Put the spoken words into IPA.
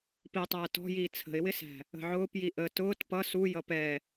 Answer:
p i tˤ æː t ɔ̤ j iː t͡sʰ ə̤ ɪ̯ w ɪ s æ̤ | ə̤ ʕ ʊː p j i ʔ ə t ʊː t p ʌ s u j ʌ p ɛ

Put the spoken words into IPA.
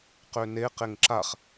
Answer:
q ø n e q e ŋ ǁ a χ

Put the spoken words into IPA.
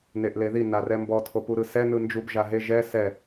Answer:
n e ʔ l e ð i n a r ɛ m b ɔ tʰ o p u ɾ ɯ s ɛ n ɯ n d͡ʒ u b ʒ a ɦ e ʒ ɛ s ɛ

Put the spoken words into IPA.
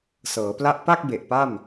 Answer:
s ɤː˩˦ p l a˦˥ ʔ p a˥˩ k̚ b e˨˩ ʔ p a˥˩ m

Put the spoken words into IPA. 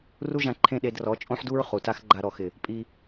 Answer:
r u˦ ʒ ã˧ ǃʰ ẽ˦˨ ɗ e˧ d r ɔ˨˦ t͡ʃʼ õ˦ ħ d u˦ ɹ χ u˨ t a˦ x ɡ͡ǃ a˧ ɾ ɔ˨ x ɪ˨ | pʼ i˧

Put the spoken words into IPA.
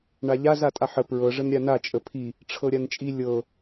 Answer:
ɳ a ʎ a z a tʼ a ħ ə p ɹ ɤ ʐ ə n ɾʲ a n a t͡ʃʼ ə pʰ i | ʈ͡ʂʰ ɤ ɾʲ a n t͡ʃʼ i lʲ ɤ

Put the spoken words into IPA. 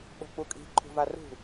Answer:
ɓ o̤ k͡p u kʼ i̤ ǃʰ ṳ v a r ṳ

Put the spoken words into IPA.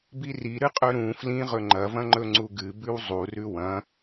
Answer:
b i r i ɾ ɨ qʼ ɵ ɾ ũ f l ĩ ʁ ɵ ŋ͡ǃ ɐ v ɐ̃ ŋ͡ǃ ɵ ŋ͡ǀ u ɡ ɨ b ʉ w zˤ u r ʉ w ɐ̃

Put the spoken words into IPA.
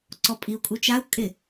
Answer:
ǀ ɔ pʼ i u̯ kʼ u t͡ʃ a u̯ kʼ ɪ

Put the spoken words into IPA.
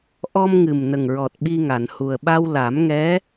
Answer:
ʔ ɔ˧ m ŋ ɨ˨˩ m n ə˨˩ ŋ ɹ ɔ˨˩ t̚ ɓ i˧ ŋ a˨˩˨ n h u˨˩ ə̯ ɓ a˧ w l a˨˩˦ m ŋ ɛ˧˥

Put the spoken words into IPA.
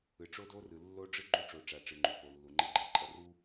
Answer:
ɯ˨ ʈ͡ʂ o˦ d o˦ r ɯ˨ lː o˦ ɖ͡ʐ ɯ˦ ɡ͡ǃ u˦ ʈ͡ʂ o˨ ʈ͡ʂ a˨ ʈ͡ʂ ɯ˨ ŋ͡ǃ u˨ p o˨ lː u˨ ŋ͡ǃ e˦ ɡ͡ǃ ɛ˨ ǃʼ ʌ˦ r u˦

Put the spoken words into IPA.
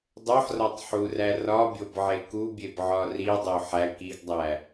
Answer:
dˤ o ħ r ɒ tˤ ħ u r æ r ɒ bʲ o b ʕ e k u bʲ e b ʕ ɒ r i dˤ o ħ æ k i ɡ dˤ æ

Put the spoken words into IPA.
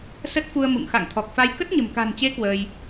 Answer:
s ə˦˥ t̚ f u˧ ə̯ m ṵ˧˨ ŋ x a̰˧˨ ŋ t̪ʰ ɔ˨˩ k̚ f a˧ j k ə˦˥ t̚ ɲ ə̤˨˩ m k a̤˨˩ n t͡ɕ e˨˦ k w əː˧ j

